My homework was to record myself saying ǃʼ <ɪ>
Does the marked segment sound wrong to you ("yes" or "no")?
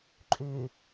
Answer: yes